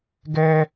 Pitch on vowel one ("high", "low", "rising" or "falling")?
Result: high